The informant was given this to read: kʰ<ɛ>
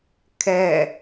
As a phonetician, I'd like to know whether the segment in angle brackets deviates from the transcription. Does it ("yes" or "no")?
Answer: no